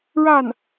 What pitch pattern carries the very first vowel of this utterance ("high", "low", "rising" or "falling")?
falling